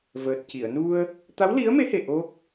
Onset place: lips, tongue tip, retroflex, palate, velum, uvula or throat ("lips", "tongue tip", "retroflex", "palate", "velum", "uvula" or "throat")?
lips